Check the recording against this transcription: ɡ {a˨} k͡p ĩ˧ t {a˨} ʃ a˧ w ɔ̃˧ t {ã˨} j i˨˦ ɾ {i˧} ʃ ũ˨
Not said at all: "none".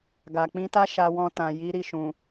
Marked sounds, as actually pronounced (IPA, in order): a˨, a˦, ã˨, i˧

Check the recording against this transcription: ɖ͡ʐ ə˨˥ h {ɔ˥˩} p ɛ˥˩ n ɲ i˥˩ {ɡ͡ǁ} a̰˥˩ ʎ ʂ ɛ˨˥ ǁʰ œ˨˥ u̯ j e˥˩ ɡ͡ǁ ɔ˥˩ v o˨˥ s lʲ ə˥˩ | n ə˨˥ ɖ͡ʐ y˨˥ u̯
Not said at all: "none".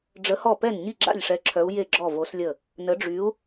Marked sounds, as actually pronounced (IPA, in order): ɔ˥˩, ɡ͡ǁ

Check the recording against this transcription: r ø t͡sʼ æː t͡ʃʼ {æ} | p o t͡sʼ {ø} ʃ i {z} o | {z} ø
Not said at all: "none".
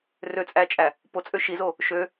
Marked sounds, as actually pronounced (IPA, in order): æ, ø, z, ʃ

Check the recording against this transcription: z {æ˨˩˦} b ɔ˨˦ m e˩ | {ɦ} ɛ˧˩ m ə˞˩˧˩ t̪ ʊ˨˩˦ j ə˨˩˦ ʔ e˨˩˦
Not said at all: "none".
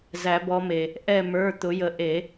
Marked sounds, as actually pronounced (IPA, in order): æ˨˩˦, ʔ

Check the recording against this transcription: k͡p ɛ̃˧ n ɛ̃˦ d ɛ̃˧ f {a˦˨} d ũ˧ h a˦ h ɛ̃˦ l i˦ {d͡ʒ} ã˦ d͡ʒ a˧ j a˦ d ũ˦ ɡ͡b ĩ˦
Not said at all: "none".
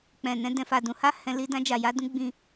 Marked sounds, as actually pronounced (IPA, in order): a˧, d

